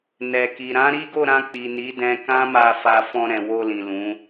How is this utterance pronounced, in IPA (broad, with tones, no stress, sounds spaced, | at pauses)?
n ɛ˨ k i˨ ɾ ã˨˦ ɾ i˦ ɡ o˦˨ ɾ ã˧ k͡p i˨ n i˨˦ d ɛ̃˧ k ã˦ m a˧ f a˧ f ɔ̃˧ ɾ ɛ̃˨ w o˧ l ĩ˨ l ũ˨˦